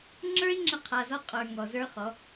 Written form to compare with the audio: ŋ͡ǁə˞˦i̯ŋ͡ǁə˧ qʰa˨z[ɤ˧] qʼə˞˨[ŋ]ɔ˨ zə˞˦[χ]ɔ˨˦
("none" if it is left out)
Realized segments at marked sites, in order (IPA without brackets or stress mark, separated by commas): ɔ˧, ŋ, χ